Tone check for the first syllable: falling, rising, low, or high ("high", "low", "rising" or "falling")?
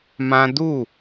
high